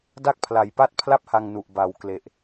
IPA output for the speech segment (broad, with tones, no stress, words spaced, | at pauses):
da˥˩k̚pʰla˨˩jpa˥˩t̚ pʰla˥˩p̚ha˧ŋnu˨˩ʔ ba˨˩wkle˨˩ʔ